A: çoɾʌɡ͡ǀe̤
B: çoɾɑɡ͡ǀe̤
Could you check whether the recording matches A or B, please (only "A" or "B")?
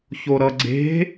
A